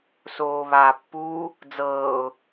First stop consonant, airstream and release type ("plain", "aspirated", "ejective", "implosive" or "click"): plain